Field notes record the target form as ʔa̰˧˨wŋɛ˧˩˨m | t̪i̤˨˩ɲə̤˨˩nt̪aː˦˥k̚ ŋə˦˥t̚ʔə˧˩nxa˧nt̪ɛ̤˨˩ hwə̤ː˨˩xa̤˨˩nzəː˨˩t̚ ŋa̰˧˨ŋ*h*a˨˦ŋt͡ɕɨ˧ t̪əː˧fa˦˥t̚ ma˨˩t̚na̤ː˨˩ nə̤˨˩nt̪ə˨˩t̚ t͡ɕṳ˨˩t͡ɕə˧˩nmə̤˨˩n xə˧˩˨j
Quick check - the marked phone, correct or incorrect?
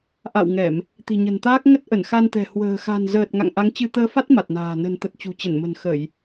incorrect